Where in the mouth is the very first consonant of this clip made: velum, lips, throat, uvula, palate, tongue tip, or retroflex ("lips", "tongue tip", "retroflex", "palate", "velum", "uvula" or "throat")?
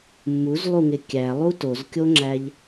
lips